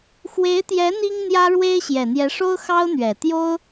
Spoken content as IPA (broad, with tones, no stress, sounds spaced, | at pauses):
x w e˧˥ ɪ̯ t̪ j ɛ˧˥ n̪ i˥ ŋ n̪ j ä˥ ɻ w e˥ ɪ̯ ɕ j ɛ˨˩ n̪ j ɛ˧˥ ʂ o˥ ʊ̯ x ɑ˥ ʊ̯ n̪ ɥ ɛ˨˩ t̪ j o˥ ʊ̯